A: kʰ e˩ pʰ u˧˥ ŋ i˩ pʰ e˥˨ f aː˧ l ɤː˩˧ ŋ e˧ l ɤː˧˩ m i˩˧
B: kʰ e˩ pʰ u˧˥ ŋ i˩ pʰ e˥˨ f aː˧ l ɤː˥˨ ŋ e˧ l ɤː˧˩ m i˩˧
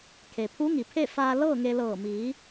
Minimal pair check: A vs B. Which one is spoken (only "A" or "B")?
B